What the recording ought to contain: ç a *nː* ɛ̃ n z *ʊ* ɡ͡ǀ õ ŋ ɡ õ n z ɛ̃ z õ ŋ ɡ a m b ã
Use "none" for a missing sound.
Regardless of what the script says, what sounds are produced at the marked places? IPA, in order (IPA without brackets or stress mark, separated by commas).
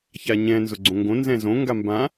ɲ, ʊ